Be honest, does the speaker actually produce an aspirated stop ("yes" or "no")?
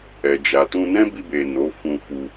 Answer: no